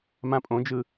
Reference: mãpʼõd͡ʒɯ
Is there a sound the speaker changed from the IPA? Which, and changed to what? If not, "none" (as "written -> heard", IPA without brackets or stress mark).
none